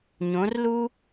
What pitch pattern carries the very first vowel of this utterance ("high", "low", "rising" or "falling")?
rising